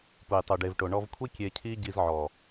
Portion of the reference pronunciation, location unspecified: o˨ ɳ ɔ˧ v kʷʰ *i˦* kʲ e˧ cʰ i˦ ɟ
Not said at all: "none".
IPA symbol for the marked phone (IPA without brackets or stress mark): i˦